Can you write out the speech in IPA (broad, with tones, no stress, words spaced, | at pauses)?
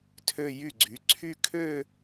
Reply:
tʰø˥˧jy˥˩ɡ͡ǀy˩˥ ǀʰy˥˧ kʰø˥˧